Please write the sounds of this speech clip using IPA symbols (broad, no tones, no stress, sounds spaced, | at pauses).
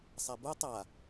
sˤ ɛ b u tˤ a